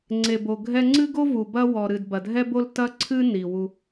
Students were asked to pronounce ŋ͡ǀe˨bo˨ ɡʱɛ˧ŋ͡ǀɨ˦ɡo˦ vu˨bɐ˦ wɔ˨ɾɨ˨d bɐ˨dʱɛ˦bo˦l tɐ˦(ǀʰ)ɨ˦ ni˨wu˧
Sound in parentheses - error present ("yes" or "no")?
no